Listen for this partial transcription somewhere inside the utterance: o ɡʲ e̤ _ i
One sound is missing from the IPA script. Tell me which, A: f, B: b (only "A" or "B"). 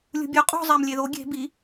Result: B